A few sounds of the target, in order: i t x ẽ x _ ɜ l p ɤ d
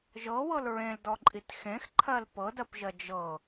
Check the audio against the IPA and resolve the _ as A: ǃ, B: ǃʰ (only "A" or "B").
B